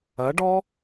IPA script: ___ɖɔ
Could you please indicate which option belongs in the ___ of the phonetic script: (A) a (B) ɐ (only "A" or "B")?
B